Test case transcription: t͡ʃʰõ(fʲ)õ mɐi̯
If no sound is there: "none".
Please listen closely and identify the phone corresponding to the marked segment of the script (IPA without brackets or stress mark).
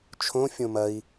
fʲ